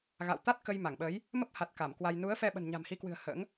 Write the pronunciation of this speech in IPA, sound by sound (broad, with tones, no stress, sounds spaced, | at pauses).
ɣ a̰˧˨ w t̪ a˦˥ t̚ k ə˧ j m a˧˩ ŋ ɓ əː˨˦ j | m ə˦˥ p̚ h a˨˩ t̚ k a˧˩ m k w a˧ j n u˨˦ ə̯ f ɛ˧ ɓ ə̤˨˩ n ɲ a̤˨˩ m h i˨˦ k w ɨ̤˨˩ ə̯ h ə̰ː˧˥ ŋ